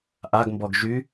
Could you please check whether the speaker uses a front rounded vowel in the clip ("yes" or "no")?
yes